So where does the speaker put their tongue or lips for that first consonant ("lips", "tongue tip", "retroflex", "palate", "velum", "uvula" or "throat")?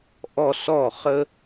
throat